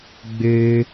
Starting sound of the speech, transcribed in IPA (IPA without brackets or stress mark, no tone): ɡ͡b